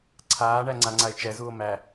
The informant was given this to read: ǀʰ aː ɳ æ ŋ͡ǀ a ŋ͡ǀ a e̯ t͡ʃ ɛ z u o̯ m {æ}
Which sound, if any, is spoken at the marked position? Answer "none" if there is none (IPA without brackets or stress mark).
æ